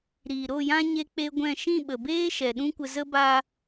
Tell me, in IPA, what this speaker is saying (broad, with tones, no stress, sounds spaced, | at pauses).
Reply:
ɾ iː˨ ɾ o˦˨ j ã˦ ɲ e˦ k͡p e˦ ɡʷ ɛ̃˦˨ ʃ ĩ˦˨ ɓ ə˨ b eː˦ ʃ ɛ˨ ɗ ũ˦ kʷ ə˧ z ə˦ b a˧